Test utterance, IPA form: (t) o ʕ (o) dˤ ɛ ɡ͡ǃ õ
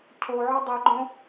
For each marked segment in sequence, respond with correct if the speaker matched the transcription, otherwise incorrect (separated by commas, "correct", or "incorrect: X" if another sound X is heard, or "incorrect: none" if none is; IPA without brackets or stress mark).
incorrect: cʰ, incorrect: ɔ